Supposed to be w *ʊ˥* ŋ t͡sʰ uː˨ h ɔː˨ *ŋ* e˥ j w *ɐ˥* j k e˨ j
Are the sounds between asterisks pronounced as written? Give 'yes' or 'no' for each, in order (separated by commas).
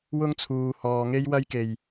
yes, yes, yes